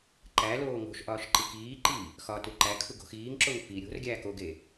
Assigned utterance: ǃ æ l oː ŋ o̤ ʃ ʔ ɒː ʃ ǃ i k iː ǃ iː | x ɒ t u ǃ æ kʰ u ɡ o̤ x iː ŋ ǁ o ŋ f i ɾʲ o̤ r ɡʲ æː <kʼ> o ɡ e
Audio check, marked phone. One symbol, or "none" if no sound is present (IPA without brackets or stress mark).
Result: k